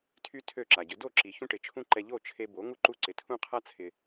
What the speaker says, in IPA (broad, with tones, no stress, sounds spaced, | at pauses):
tʰ y˥ tʰ ø˥˩ ǁ a˩ ɟ ʏ˩˥ d o˥˩ ǁ i˩ ç ũ˥ ʈ ɪ˩˥ t͡ʃʰ ũ˥ ǃ ɛ˧ ʎ o˥˩ t͡ʃʰ e˧ b o˩˥ ŋ u˥ ǃ u˥˩ ǀ ɪ˩˥ tʰ ũ˥ qʰ a˥ t͡sʰ ɪ˩